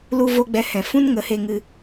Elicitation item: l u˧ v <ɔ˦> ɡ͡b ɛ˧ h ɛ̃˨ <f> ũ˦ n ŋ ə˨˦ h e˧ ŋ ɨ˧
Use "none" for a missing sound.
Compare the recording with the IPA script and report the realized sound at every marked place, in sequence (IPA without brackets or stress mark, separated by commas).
o˦, f